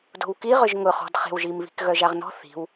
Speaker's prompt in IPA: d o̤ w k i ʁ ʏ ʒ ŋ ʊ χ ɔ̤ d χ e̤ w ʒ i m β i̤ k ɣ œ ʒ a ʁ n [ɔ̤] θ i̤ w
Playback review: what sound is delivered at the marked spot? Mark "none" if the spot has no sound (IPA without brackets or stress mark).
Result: ɔ̤